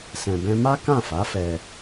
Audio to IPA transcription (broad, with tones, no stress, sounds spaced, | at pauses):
s ɛ̃˧ b ɛ̃˦ m a˦ k ã˦˨ f a˨˦ f ɛ˧